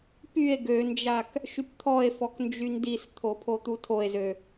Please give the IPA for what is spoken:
p y e̯ ɡ ø n d͡ʒ a k | ʃ y p t̪ʰ ɔ e̯ f ɔ k n d͡ʒ y n d i s t̪ʰ o pʰ o t̪ u tʰ o e̯ z ø

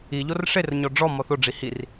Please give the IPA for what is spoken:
i ʎ o r ʂ e r ɲ ɔ ɖ͡ʐ ɔ m ɔ θ o ɖ͡ʐ i h i r

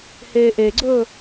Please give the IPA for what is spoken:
h eː ʔ e ɡ͡ǀ ɵː

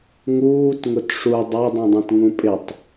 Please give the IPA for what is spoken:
ŋ uː t ŋ ʊ t ʂ u dˤ ɛ dˤ ũ dˤ ɛ̃ t ŋ ũ pʼ ɪ tˤ

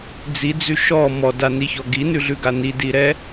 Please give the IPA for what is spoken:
d͡z i d͡z ʉ ʃ ɔ m ɔ d a n i ç ɔ ɡ i n ʉ ɮ ʉ ɡ a n i d i ɾ ɛ

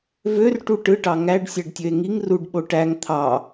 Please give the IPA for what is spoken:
v ø r ʈ u ʈ ɯ ʈ ɑ ŋ æ ɖ sʲ æ ɖ tʲ ø e̯ ŋ i ŋ r u ɖ ɓ o ʈ æ ŋ t̪ʰ ɑ

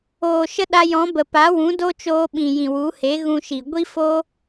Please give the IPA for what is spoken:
oː˨ ʃ ə˦ ɗ a˧ j ɔ̃˨˦ b ə˨ p a˨˦ w ũ˨˦ d o˦ t͡ʃ oː˧ ɓ ĩ˨ j ĩ˨ w u˨˦ h e˨˦ ɣ ũ˧ ʃ i˨ ɡʷ i˦ f o˦

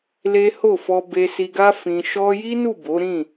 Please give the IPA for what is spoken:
l e˦ h o˦˨ f ɔ˧ b e˧ s i˧ ɡ a˦ f ĩ˧ ʃ ɔ˦ j i˦ n u˦˨ b o˨˦ ɾ ĩ˦˨

